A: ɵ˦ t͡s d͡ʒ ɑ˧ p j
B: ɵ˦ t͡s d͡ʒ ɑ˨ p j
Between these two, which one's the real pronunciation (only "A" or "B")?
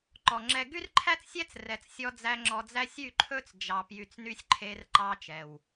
B